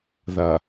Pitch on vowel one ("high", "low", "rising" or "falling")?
low